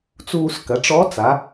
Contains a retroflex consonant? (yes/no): yes